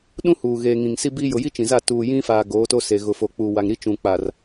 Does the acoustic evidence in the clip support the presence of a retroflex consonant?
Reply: no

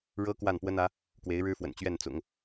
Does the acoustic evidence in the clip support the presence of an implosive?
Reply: no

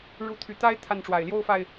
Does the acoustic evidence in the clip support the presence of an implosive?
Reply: no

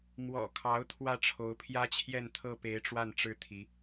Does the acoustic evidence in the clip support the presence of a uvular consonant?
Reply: no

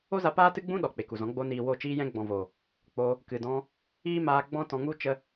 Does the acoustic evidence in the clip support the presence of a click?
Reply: no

